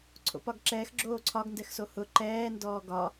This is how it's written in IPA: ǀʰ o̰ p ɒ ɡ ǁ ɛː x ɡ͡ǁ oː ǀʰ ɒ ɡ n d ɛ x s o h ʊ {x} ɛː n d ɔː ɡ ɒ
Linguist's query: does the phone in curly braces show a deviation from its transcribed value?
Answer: yes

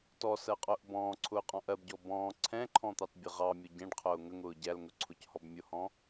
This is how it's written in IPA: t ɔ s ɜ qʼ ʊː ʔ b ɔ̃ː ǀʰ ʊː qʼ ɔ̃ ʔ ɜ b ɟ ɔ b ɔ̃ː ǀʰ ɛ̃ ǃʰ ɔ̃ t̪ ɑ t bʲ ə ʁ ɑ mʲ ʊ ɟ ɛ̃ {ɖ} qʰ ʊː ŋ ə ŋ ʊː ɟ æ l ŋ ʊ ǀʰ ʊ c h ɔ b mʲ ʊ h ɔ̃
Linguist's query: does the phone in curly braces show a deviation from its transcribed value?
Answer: no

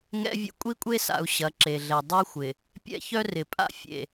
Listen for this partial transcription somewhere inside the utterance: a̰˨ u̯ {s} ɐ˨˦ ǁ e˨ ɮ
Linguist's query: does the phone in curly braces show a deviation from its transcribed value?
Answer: yes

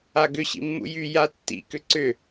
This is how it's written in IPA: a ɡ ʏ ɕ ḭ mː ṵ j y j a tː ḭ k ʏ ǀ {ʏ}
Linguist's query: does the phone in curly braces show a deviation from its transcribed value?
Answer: no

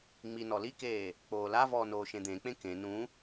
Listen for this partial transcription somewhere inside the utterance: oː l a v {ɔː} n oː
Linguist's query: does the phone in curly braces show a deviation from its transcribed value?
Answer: no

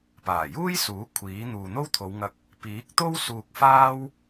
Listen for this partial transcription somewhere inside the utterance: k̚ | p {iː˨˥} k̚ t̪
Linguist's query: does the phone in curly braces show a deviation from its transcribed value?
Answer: no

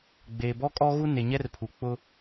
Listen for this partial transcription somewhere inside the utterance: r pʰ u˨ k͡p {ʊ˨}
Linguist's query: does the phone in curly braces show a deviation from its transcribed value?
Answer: yes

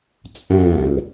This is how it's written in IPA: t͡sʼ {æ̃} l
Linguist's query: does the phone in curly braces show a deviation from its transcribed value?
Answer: no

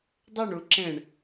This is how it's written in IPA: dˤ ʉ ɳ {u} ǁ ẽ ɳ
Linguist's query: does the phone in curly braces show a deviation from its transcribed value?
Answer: no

